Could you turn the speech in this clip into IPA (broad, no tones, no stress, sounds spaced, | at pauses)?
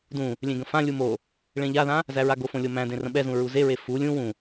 d ũ | lʲ ẽ ɡ ə̃ f ã lʲ u m o | ɭ ẽ ʎ a ð ã | z æ ɹ a ɡ o f õ lʲ o m æ̃ d ẽ r ə̃ ɓ ɛ z ũ ɹ u z e ɹ e f u lʲ ũ w ũ